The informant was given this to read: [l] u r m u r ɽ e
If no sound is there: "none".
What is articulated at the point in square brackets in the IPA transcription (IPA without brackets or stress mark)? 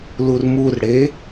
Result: l